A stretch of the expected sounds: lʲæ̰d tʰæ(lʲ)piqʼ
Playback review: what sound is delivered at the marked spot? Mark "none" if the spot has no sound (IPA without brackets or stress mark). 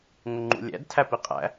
none